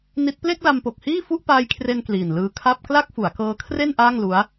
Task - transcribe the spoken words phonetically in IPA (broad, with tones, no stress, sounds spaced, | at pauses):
n i˦˥ t̚ p l e˥˩ k̚ l a˧ m p o˨˩ k̚ h iː˥˩ f u˥˩ ʔ p aː˦˥ j kʰ r e˧ n k l iː˨˩ n l ɯː˧ kʰ a˥˩ p̚ k l a˥˩ k̚ f u˩˦ a̯ k ɤː˧ kʰ r e˥˩ n ʔ aː˥˩ ŋ l u˦˥ a̯